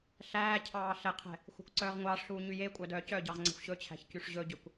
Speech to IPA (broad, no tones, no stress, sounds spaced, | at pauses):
ɬ æː cʰ ɑː ɬ ɛ qʰ ɛ̤ | xʷ æ̤ kʷ ǀ œː ʁ ŋʷ ɑː ʂ ɬ uː ɲ y j e kʷʼ œ d œː c œ ɟ ɑ ʁ ŋ͡ǀ ɛ̤ xʷ ɕ ɵ t͡ɕʰ æ̤ ç c y ʂ ʑ ɵ ɟ ø kʷ